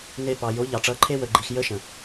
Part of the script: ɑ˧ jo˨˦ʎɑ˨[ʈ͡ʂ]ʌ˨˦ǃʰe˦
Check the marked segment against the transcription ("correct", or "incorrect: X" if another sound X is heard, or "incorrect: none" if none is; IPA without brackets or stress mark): correct